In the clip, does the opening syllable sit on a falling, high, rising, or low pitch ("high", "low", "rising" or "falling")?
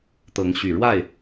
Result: rising